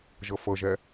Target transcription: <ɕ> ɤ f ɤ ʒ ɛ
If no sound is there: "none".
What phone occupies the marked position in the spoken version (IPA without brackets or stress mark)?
ʒ